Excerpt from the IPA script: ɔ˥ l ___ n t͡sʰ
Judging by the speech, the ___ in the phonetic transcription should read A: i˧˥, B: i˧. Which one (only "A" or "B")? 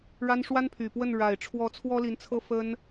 A